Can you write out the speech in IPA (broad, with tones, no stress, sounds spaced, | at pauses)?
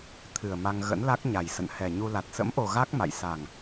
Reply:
t̪ʰ ɨ˨˩ ə̯ m a˧ ŋ ɣ ə̰˧˥ n l a˦˥ k̚ ɲ a˨˩ j s ə̰˧˨ n h ɛ˨˩ ɲ u˧ l a˨˩ t̚ s ə̰˧˥ m ʔ o˨˩ ɣ a˦˥ k̚ m a̰˧˨ j s a˨˩ ŋ